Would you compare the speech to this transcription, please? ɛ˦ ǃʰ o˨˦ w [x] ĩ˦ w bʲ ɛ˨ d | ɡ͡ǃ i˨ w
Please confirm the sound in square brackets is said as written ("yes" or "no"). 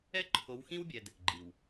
yes